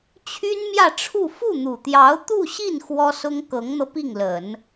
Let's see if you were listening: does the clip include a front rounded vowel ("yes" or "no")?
yes